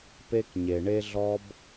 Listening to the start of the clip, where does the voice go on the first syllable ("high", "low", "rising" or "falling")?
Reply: high